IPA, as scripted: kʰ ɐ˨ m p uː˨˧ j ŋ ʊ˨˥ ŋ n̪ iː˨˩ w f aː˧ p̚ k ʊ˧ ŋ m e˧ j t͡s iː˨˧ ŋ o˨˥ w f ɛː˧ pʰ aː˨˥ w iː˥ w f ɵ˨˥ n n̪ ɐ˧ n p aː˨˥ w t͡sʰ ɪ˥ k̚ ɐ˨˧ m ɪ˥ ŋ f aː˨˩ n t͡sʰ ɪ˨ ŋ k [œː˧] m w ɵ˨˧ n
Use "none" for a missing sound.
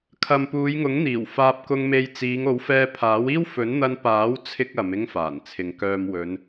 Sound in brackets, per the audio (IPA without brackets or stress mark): œː˨